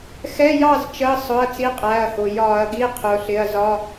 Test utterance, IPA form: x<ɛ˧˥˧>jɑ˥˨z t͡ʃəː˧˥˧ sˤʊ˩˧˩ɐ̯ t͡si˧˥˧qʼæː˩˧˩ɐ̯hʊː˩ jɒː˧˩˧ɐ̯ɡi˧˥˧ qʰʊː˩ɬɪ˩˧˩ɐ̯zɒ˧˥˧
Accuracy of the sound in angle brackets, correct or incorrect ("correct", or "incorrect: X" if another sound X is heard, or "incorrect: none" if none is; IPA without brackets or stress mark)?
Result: correct